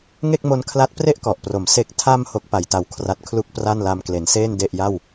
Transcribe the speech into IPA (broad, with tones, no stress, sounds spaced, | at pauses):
ŋ e˥˩ k̚ m o˧ n kʰ l a˦˥ t̚ p r e˥˩ ʔ k ɔ˨˩ ʔ p r o˩˦ m s e˨˩ k̚ tʰ a˧ m h o˦˥ k̚ p a˨˩ j t a˨˩ w kʰ r a˨˩ t̚ kʰ l u˦˥ k̚ p r a˥˩ n l a˧ m k l e˩˦ n s eː˥˩ n d e˨˩ ʔ j a˥˩ w